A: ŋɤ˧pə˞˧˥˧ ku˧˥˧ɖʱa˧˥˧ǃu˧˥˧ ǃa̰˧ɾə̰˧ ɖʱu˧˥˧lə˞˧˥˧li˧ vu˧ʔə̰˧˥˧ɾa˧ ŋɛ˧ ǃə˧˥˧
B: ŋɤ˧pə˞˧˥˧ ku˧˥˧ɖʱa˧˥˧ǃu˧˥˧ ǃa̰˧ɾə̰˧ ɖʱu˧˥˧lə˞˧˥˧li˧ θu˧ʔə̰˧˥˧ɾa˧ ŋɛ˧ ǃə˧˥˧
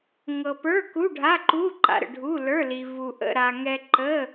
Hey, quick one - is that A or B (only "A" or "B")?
A